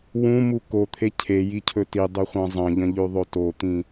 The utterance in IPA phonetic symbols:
w ũ m u k o t̪ʰ e cʰ e j i cʰ ɵ t i dˤ ɵ χʷ ã zˤ ɐ̃ ʎ ɐ̃ ʎ ʉ ðˤ o t o t̪ ĩ

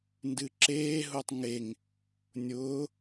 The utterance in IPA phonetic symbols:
n d ɨ ǁ eː ɦ ʊː tˤ ŋ e ŋ | nʲ ʊː

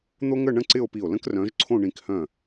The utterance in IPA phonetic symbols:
n̪ o˥ ŋ ə˥˧ ɳ ə̃˥ ǀ ɪ˥˧ o̯ p i˧˩ o̯ l ə̃˥ k r œ̃˨˦ ʒ ǀʰ õ˥˧ ɳ ĩ˧˩ k h œ̃˧˩

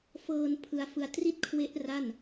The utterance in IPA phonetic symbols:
f ɤː˧ n pʰ ɯ˦˥ a̯ f ɯ˦˥ a̯ t r i˥˩ t̚ kʰ w e˦˥ ʔ r a˥˩ n

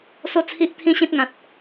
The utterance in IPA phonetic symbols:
s o˦ t͡sʰ i˦ ʔ t̪ʰ ĩ˦ ɕ ĩ˦ t̚ ŋ ã˨ t̚

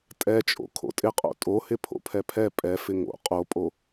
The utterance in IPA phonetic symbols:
tʼ ɛ t͡ʃʼ o̰ kʰ o̰ tʼ ɪ qʼ o̰ tʼ o h ɪ pʰ o̰ pʰ ɛ pʰ ɛ pʼ ɛ f ɪ ŋ o̰ qʼ o pʼ o

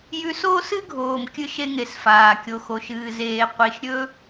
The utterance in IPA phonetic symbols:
j ʉ˧ s oː˦ s ɨ˦ ɡʱ oː˨ m kʲ ɨ˧ ʃ e˧ ŋ e˨ s f aː˨ kʲ o˨ x o˨ ʃ ɨː˨ z eː˨ qʷ i˨ ʃ ɾʲ ɵ˧

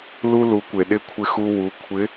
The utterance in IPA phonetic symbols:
l u˧ l u˩˧ kʷ e˩ ɗ ɪ˧˥ kʷʰ ɪ˧ x u˧ w u˩˧ kʷʰ ɪ˧˥

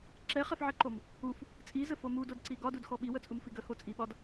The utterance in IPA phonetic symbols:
ǁ ɛ χ ɛ f ʕ ɛ ǃ o m | u f | t͡sʼ i z ə f o m u d o d ǀ i ɡ ɒ d u d x ɔ ɓ i w ə t͡sʼ u m f i ɡ ə h o t͡sʼ i ɓ ɒ d

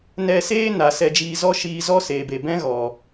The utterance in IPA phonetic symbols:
n ɛ˧ s eː˦ n a˨ s ɛ˧ d͡ʒ iː˧ z ɔ˦ ʃ iː˧ z ɔ˦ s eː˨ b e˨ b ɛ̃˦ ɣ ɔ˨

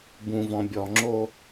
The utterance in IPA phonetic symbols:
b ũ v ɔ̃ bʲ ɔ ŋ͡ǁ o

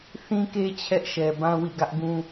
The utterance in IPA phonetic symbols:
θ ĩ˦ k e˦ t͡ɕʰ ɛ˦ ʔ ʃ ɛ˨ b ã˦ w ḭ˦˨ ɡ ä˦ ʔ ɡ ũ˦

